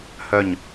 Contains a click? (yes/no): no